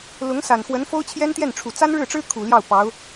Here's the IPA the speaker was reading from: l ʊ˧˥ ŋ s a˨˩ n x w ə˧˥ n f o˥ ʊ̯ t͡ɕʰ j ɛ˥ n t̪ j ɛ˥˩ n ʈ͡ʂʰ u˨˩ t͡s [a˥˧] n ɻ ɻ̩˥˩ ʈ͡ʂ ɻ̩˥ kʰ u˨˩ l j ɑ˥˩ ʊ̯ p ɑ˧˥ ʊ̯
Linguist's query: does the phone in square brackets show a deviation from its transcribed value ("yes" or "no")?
yes